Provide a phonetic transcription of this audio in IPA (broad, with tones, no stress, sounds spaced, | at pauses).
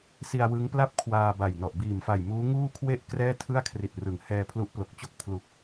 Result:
s i˧ a̯ w ɯ˦˥ ŋ p l a˥˩ p̚ kʰ w aː˧ b a˨˩ j n ɔ˨˩ ʔ b iː˨˩ m f a˨˩ j m uː˦˥ ŋ uː˥˩ kʰ w e˥˩ ʔ k r ɛː˥˩ tʰ ɯ˥˩ a̯ kʰ r i˨˩ t̚ r ɯ˩˦ ŋ h ɛː˧ pʰ l u˦˥ ʔ p l o˨˩ k̚ t͡ɕ o˥˩ k̚ pʰ l u˨˩ k̚